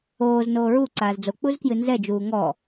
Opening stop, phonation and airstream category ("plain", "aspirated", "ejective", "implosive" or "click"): click